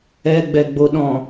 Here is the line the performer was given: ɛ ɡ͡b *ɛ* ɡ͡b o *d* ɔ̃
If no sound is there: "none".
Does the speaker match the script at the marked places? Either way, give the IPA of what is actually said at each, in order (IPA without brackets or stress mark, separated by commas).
ɛ, ɗ